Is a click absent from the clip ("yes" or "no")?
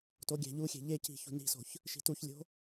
yes